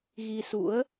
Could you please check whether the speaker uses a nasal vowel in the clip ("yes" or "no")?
no